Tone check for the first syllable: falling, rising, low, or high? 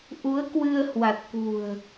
rising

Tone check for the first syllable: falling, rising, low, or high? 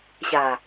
low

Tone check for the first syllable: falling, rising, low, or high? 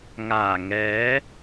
low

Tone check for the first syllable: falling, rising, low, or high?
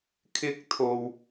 high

